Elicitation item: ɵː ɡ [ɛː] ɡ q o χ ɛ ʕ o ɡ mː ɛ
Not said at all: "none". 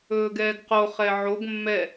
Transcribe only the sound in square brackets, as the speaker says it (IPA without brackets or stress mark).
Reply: ɛː